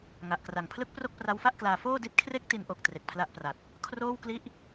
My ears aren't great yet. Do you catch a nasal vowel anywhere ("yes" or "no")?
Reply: no